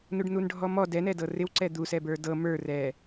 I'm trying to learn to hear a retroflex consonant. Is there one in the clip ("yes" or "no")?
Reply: yes